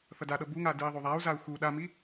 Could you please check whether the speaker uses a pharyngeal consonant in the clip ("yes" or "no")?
no